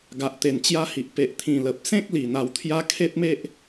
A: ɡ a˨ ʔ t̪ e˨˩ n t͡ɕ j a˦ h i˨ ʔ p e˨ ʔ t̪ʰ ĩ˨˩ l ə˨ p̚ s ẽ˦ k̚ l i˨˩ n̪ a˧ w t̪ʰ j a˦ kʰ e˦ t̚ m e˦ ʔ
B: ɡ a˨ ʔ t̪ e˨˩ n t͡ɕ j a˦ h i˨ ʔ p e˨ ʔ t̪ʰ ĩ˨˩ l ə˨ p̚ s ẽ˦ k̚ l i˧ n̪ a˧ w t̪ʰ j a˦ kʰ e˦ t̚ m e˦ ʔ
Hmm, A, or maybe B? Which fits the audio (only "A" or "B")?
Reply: A